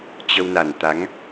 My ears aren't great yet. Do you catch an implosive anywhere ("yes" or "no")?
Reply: no